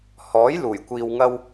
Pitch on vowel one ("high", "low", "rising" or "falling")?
rising